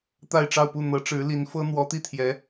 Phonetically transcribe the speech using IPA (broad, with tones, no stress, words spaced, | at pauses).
t̪a˥˧ɪ̯ʈ͡ʂɑ˥˧ʊ̯pu˥˩ n̪ɤ˧˥ʈ͡ʂɻ̩˧˥ li˧˥nfɤ˥ n̪wɔ˧˥t̪i˥˩t̪ʰjɛ˧˥